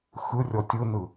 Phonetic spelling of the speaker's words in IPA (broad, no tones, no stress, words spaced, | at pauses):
xɯrʲɔtʲ ɯnɯ